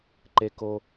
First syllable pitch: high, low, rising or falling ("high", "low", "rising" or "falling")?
high